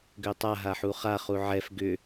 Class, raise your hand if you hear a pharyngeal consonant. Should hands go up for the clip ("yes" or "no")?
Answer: yes